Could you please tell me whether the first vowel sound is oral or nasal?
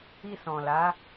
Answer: oral